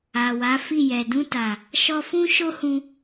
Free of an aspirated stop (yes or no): yes